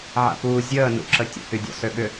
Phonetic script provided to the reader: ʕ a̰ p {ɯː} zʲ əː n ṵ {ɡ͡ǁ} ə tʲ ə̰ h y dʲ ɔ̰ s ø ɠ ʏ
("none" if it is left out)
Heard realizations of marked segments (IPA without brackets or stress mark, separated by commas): uː, ǁ